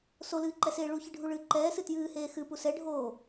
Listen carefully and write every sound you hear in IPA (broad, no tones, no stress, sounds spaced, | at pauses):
s o l ɨː ǃ ɛ s eː ɭ u ç ɨ ɖʱ u ɭ ɨː ǃ ɛː s ɨ t j ɨː h eː x ɨ p u s ɛ ɖʱ oː